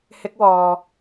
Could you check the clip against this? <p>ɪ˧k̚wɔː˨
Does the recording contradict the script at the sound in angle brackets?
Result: yes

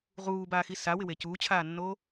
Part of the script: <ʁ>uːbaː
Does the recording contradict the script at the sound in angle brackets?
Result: no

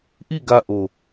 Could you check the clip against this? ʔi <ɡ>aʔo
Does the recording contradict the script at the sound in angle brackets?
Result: no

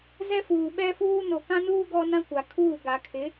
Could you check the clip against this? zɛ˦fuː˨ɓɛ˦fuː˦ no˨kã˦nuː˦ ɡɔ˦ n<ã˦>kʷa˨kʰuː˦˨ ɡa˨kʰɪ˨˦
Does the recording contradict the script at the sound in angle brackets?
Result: no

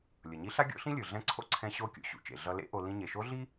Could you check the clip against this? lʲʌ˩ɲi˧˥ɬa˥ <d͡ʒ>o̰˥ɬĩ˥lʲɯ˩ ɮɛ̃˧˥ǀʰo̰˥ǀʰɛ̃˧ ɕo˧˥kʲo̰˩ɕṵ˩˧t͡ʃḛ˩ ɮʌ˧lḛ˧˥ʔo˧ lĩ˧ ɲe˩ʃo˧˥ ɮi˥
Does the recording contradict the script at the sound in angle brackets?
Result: yes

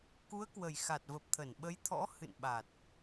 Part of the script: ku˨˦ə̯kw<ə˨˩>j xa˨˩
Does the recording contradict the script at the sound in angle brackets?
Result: no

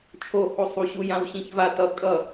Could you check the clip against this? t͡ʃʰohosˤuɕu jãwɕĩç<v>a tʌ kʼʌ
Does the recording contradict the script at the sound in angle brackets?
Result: no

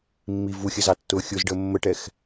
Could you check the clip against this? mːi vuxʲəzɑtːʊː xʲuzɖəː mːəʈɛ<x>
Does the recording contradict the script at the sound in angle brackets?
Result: no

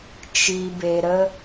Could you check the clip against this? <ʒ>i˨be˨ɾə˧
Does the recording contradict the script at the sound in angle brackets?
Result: yes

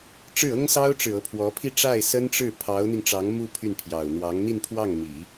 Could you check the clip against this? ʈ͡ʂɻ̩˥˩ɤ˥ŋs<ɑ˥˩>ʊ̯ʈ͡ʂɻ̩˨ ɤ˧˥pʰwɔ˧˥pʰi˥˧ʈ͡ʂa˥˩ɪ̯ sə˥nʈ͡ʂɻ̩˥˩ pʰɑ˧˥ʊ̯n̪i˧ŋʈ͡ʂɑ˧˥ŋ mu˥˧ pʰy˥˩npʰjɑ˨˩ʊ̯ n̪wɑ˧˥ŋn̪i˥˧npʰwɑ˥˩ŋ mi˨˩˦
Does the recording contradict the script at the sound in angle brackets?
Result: yes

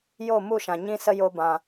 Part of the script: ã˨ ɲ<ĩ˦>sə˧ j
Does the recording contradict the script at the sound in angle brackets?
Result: yes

